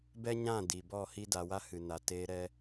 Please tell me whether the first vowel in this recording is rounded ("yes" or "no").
no